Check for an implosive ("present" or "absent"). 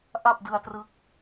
absent